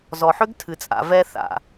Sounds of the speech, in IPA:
z ɔ˨ ħ ʏ˦ ɡ tʰ ɨ˨ t͡sʼ a̰˨ v ɛ˧ θ a̰˨

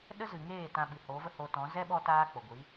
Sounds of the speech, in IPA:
ɗ ə˦ z ɨ˨ ŋ eː˦˨ t ã˧ ɓ ɨ˨ h o˨˦ v ə˦ h o˧ t ɔ̃˨˦ z ɛ˦ ɓ ɔ˧ t aː˦ k͡p o˨ ɡʷ i˨˦

